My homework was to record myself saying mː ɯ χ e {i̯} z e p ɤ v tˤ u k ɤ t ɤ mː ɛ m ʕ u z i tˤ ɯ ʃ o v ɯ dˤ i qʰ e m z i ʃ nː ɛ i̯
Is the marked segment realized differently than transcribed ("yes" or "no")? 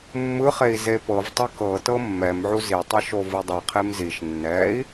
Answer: no